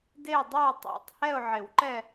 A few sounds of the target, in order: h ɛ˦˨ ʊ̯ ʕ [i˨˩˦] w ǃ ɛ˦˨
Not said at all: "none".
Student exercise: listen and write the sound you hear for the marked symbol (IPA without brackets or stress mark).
ɪ˨˩˦